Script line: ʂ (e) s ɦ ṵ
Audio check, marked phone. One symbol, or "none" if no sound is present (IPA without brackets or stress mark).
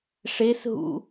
e